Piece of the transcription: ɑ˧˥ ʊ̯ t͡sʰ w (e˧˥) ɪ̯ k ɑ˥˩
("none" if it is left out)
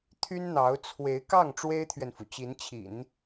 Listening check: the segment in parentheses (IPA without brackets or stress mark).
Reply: e˧˥